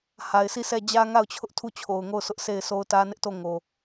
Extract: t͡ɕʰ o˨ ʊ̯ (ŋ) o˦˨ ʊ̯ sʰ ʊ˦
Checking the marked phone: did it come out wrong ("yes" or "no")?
no